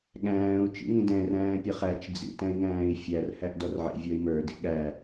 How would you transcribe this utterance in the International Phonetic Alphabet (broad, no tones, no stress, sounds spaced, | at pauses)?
ɠ æ̃ː u̯ t͡ʃ ḭ ŋ ĩ d ɛ̃ r æ̃ː pʲ ʌ χ æ t͡ʃ d͡z ḭ t æ̃ i̯ ŋ æ̃ː i̯ fʲ æ r h æ ʔ d ɔ r ʕ ḭ vʲ ɔ i̯ m ə˞ d ḭ ɠ æ